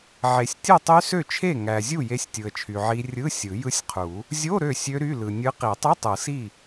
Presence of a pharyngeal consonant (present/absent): present